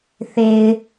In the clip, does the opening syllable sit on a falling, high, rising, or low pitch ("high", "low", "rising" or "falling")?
low